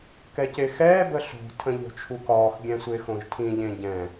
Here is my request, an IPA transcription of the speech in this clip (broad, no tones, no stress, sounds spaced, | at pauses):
k ɛ c e x ɛː b ə ɬ o̤ tʰ ə̃ ʎ o̤ t͡ʃʰ u k ɒː x ɡʲ ɛ̃ sʷ e x õ ʒ tʰ ĩ ʎ ẽ ɟ ɛ̃